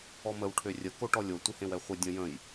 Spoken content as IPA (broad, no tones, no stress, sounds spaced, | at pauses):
ɔ m ə w ʈʰ ø rʲ ə k o ʈ ɔ lʲ o tʷ ɪ h ẽ w ɛ χʷ ɪ dʲ ə̃ j ə̃ j